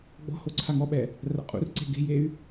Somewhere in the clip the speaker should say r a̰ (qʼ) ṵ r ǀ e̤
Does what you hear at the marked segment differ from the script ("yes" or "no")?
no